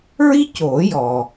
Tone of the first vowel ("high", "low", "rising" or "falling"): high